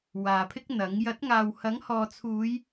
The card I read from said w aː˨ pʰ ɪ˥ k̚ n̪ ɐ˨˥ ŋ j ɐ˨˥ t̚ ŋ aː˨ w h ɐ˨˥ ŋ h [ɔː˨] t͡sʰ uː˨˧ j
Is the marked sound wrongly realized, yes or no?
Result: no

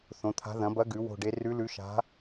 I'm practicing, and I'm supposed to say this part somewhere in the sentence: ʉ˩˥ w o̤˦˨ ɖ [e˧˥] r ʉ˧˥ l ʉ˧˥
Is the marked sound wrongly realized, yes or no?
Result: no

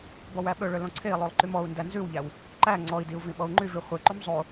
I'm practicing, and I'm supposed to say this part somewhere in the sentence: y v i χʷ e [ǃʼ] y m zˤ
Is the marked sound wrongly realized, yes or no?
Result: yes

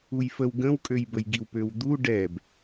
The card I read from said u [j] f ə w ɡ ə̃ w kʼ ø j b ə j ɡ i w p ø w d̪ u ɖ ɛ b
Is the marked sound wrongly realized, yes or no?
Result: no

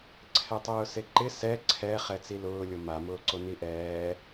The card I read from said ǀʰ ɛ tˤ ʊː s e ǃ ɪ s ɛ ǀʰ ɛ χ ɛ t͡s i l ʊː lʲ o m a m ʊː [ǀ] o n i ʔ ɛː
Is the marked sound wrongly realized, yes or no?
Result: no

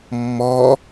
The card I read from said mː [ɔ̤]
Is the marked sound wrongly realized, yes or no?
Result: yes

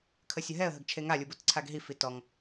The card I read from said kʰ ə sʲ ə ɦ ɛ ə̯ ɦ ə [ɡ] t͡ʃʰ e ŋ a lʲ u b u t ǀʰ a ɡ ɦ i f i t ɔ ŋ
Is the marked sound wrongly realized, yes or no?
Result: no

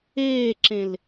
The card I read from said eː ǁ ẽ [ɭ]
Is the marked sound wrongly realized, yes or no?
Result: yes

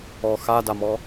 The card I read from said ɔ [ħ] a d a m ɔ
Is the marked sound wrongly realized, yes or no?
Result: yes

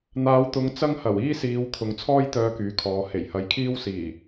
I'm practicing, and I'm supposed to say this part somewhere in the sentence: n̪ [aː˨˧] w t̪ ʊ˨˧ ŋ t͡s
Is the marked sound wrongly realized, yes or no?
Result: no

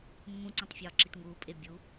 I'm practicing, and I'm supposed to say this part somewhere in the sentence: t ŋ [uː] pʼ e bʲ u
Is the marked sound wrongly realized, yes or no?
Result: no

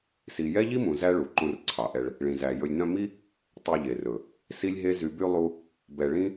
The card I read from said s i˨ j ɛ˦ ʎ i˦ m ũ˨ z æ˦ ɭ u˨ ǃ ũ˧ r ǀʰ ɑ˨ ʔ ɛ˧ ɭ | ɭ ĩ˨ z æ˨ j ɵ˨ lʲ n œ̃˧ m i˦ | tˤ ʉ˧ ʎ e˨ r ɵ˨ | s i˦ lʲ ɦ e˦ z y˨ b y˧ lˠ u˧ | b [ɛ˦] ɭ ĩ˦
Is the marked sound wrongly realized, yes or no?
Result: yes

